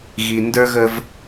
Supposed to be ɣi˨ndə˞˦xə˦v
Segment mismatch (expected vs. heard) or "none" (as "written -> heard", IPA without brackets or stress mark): x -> ɣ